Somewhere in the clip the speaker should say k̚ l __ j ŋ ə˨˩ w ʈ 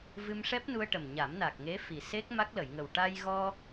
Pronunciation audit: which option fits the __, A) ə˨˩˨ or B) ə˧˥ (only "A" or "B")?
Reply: A